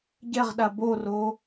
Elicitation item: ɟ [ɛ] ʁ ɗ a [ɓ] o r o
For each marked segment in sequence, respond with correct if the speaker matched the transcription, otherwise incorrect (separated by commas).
correct, incorrect